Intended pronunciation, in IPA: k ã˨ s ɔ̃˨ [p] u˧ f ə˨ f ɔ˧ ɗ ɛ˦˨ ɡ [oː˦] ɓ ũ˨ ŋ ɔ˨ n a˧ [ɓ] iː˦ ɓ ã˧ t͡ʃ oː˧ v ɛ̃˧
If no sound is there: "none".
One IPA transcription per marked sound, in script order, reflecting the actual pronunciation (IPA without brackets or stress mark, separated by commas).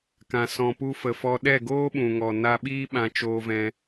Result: p, oː˦, ɓ